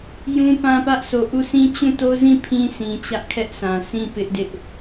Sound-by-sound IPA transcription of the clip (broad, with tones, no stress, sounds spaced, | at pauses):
j ũ˦ p ã˦ p ä˦ ʔ s o˨ ʔ u˦˨ sʰ ĩ˦ t͡ɕ ũ˦˨ t o˦ z ĩ˦˨ pʰ ĩ˦ s ĩ˨ t͡ɕ ä˦ ʔ kʰ ɛ˦ ʔ sʰ ã˨ sʰ ĩ˦˨ p ɪ˦ ʔ d ɪ˦ ʔ